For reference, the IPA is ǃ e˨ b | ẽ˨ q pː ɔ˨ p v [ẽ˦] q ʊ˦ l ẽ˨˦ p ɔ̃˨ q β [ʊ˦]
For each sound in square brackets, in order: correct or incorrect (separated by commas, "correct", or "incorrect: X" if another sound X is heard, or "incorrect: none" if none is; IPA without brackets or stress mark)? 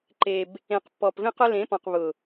correct, incorrect: ʊ˨